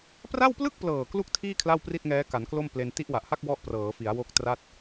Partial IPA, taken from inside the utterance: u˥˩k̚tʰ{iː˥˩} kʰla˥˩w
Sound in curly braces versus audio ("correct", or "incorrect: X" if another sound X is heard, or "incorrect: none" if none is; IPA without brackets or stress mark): correct